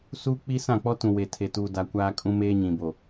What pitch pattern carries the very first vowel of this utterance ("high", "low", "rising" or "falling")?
high